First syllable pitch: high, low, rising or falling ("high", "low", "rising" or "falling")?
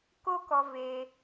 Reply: high